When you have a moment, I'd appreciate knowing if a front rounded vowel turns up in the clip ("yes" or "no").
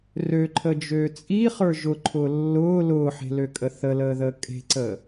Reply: yes